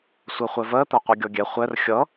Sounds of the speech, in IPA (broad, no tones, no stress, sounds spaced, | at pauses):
sʷ ɜ χʷ ɛ v ɜ t̪ ɜ qʷ ɜ ɡʲ ɔ ɡʲ ɛ χʷ ɛ r xʲ ʌ